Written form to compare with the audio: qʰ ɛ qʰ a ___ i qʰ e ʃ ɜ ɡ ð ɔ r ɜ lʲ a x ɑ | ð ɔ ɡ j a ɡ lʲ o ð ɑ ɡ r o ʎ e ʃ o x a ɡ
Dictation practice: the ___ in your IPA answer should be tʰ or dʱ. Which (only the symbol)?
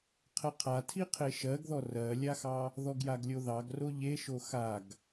tʰ